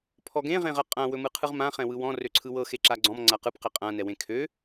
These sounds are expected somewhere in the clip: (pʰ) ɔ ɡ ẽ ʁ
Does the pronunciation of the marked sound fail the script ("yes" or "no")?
no